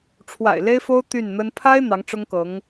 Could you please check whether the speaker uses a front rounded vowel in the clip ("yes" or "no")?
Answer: yes